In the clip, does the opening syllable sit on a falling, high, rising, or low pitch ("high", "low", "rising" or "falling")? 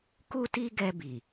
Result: high